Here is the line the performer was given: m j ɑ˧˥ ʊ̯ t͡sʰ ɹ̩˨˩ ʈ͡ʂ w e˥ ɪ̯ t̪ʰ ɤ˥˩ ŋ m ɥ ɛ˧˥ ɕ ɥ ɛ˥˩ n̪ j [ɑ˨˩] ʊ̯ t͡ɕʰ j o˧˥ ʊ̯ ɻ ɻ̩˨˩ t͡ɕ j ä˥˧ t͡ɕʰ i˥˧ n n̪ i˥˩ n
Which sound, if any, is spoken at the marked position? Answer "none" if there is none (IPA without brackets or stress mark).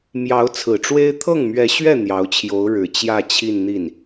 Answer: ɑ˧˥